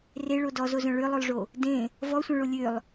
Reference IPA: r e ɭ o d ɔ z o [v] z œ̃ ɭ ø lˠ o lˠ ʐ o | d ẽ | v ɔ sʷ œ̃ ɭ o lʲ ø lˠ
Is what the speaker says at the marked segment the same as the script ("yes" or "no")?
no